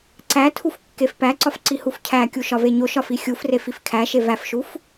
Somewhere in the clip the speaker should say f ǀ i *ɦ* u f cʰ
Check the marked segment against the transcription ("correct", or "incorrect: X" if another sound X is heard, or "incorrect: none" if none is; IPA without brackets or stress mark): incorrect: h